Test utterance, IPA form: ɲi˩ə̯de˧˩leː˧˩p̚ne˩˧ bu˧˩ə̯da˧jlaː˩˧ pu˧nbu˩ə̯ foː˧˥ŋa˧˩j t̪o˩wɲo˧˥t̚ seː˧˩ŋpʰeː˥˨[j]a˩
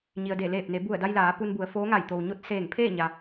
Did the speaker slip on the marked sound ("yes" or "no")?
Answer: yes